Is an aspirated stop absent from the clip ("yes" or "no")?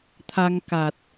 no